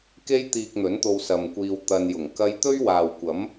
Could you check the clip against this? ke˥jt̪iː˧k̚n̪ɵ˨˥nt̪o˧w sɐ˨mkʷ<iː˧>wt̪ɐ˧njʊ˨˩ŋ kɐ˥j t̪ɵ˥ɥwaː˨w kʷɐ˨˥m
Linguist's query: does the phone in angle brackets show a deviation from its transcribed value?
no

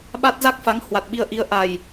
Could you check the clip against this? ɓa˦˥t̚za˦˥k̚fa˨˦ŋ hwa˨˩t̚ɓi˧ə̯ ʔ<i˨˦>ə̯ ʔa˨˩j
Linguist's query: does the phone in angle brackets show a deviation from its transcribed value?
no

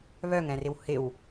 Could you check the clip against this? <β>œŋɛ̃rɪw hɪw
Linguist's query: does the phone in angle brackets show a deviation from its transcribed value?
no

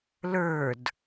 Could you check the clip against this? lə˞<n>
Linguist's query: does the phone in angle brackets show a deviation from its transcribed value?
yes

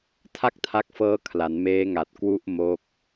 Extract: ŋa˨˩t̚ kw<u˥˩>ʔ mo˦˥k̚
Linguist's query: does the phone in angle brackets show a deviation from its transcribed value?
no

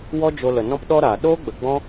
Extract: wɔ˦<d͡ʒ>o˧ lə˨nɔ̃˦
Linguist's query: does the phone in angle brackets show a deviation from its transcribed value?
no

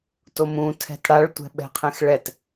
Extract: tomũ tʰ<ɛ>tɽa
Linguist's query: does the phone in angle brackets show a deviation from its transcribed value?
yes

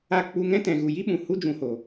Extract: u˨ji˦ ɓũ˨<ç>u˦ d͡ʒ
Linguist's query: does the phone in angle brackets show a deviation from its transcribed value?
yes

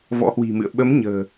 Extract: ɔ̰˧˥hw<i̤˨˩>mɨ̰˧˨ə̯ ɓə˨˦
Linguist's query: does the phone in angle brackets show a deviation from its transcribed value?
no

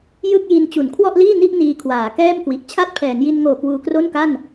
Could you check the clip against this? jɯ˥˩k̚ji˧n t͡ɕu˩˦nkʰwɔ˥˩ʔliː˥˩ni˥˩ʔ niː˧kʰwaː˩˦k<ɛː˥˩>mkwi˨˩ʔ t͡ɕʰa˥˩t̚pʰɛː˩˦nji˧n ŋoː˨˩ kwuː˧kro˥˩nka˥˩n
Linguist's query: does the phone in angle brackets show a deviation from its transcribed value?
no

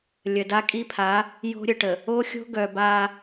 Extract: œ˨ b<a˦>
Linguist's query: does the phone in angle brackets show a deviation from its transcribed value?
no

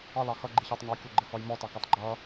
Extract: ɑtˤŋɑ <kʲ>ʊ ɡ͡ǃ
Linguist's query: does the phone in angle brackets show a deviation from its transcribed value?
no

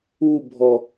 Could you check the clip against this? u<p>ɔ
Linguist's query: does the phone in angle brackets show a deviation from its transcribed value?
yes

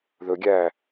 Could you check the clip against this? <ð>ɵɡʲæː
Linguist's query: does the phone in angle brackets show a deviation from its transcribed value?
no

